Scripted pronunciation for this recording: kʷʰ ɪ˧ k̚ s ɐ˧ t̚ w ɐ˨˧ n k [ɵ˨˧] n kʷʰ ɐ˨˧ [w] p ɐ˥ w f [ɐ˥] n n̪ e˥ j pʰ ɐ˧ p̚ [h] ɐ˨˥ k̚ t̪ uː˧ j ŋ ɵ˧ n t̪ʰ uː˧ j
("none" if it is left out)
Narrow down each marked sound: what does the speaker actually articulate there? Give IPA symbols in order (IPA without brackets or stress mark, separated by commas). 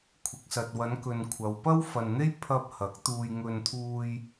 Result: ɵ˨, w, ɐ˨, h